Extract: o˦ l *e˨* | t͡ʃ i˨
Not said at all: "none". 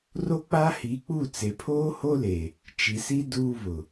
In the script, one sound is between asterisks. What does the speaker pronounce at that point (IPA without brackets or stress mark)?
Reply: e˨